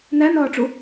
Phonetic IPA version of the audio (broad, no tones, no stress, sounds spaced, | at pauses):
n æ n ɒː ʈ͡ʂ u